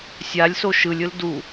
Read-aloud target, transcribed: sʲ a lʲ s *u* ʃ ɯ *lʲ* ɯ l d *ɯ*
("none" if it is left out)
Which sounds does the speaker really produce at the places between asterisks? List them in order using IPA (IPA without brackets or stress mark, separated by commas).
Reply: o, lʲ, u